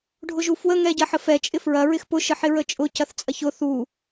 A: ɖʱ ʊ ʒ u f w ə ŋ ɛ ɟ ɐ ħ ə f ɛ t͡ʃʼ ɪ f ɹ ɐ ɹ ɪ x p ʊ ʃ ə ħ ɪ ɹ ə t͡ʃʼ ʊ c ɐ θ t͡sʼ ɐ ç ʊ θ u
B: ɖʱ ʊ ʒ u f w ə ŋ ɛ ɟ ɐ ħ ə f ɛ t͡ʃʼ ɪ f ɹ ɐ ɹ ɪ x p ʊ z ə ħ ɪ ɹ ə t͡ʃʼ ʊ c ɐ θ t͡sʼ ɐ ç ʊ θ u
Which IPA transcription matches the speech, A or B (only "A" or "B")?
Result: A